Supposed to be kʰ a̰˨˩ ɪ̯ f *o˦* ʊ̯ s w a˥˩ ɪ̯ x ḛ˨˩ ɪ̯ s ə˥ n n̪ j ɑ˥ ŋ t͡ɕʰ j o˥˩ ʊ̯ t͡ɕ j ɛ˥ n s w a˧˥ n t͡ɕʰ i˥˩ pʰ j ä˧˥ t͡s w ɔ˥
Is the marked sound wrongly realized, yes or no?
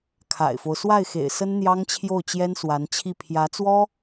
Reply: no